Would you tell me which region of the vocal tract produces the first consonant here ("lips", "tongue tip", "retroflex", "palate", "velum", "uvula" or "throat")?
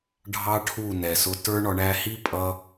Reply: retroflex